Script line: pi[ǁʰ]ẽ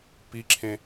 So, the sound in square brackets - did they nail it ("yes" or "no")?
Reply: yes